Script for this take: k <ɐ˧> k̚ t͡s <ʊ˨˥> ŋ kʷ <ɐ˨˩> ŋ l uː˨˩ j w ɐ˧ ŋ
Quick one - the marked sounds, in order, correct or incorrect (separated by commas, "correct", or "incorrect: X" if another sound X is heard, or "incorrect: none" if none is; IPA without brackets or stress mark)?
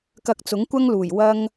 correct, correct, incorrect: ɐ˥